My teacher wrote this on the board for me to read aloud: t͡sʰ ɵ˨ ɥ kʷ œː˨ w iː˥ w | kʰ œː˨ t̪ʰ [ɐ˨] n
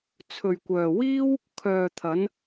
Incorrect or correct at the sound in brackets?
incorrect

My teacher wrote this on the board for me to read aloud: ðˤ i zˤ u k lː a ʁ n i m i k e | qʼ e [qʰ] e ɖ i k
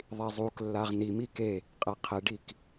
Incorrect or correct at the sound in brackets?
correct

